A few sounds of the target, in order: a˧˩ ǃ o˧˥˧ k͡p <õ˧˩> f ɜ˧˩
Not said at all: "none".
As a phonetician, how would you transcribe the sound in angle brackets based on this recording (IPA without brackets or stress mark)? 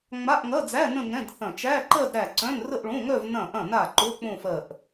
õ˥˧